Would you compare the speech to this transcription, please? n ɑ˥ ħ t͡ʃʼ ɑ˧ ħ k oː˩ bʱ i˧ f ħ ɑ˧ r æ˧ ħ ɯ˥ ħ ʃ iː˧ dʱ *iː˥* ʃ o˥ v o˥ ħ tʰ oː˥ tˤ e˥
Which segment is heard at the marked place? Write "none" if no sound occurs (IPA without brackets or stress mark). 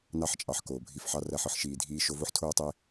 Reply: iː˥